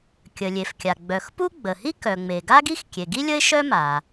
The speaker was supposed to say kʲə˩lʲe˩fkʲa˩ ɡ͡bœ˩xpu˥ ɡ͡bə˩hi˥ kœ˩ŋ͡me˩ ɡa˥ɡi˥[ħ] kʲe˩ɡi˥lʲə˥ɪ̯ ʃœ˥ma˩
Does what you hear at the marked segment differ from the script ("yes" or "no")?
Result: yes